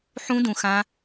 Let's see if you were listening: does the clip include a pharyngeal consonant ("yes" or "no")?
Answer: yes